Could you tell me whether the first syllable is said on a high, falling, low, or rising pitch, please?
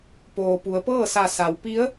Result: low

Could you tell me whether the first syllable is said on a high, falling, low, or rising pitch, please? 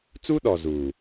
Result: high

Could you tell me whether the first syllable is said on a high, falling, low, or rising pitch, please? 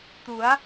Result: rising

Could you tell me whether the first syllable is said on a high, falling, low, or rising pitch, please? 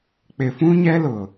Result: low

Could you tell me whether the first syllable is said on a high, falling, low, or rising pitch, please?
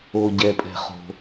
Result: low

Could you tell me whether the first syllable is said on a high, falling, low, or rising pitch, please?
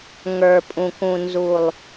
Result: low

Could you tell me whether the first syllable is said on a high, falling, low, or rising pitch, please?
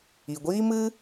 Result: low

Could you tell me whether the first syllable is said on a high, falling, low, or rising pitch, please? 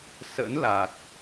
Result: rising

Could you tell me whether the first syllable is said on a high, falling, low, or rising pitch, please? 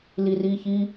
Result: low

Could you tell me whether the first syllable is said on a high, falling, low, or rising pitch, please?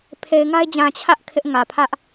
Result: low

